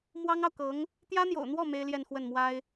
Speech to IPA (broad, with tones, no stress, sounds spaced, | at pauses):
m w ɑ˥ ŋ ɑ˨ ʊ̯ k ɤ˧˥ ŋ | t̪ j ä˥ n̪ j o̰˨˩ ʊ̯ n̪ w ɔ˥˩ m e˥ ɪ̯ l j ɛ˥˧ n x w ə˥˩ n m w a˥ ɪ̯